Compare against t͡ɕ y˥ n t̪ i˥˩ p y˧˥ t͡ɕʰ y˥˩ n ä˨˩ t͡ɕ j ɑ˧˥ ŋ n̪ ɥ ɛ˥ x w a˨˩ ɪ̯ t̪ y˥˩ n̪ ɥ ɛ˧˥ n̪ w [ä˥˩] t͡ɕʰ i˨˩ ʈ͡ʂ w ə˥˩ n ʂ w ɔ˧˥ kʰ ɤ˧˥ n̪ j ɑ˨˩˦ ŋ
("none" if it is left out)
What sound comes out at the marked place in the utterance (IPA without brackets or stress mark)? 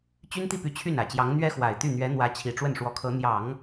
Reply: ä˧˥